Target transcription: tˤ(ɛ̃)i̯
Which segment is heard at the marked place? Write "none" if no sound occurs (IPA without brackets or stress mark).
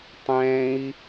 ɛ̃